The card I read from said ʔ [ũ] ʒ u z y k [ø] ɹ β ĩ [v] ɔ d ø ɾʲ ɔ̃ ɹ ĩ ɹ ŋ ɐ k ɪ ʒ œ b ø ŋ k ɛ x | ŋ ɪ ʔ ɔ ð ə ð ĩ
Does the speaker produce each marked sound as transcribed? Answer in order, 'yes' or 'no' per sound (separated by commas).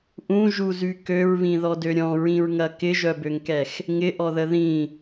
yes, yes, no